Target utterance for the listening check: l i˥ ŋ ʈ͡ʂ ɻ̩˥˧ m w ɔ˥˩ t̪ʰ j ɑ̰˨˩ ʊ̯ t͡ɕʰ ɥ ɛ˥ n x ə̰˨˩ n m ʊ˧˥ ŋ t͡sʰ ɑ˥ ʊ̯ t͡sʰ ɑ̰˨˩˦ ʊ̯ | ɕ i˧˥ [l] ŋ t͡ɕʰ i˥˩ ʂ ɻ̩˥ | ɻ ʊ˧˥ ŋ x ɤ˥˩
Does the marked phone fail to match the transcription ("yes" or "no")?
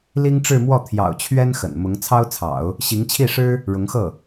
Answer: yes